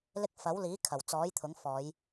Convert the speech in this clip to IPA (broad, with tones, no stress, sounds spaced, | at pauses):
l ɪ˧ k̚ f ɐ˨˥ w l iː˨˥ kʰ ɐ˨˩ w t͡s ɔː˨˥ j t̪ʰ ʊ˨˥ ŋ f ɔː˨˧ j